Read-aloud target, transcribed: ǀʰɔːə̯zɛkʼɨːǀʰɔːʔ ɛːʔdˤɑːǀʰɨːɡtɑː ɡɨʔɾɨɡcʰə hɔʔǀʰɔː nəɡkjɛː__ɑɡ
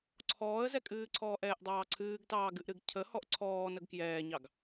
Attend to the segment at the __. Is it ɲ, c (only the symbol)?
ɲ